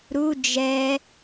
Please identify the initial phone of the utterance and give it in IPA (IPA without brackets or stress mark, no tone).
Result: ɾ